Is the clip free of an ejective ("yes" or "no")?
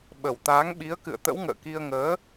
yes